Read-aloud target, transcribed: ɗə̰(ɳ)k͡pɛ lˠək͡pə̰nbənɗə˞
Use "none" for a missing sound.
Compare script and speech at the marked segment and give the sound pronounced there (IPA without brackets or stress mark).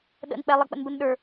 n